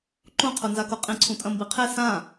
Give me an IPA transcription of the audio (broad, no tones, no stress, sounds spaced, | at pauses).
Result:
ǃ ũ qʰ u n z a k o qʼ ĩ ǀʰ ũ tʼ ɐ̃ m b i qʰ e s ã